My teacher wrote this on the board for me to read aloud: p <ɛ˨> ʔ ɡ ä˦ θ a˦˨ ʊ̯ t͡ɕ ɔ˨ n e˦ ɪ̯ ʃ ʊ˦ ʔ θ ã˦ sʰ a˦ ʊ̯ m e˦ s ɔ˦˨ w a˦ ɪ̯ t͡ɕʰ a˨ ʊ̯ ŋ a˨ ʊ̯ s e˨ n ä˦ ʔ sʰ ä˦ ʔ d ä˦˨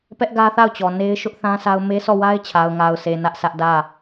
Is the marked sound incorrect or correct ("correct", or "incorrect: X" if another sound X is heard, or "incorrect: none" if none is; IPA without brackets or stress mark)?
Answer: incorrect: ɛ˦